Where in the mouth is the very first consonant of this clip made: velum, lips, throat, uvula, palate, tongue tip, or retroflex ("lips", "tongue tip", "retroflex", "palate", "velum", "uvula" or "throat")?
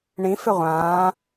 retroflex